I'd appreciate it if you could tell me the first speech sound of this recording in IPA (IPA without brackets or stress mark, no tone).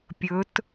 pʲ